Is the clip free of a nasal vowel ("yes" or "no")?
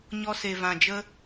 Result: no